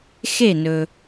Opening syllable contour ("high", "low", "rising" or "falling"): falling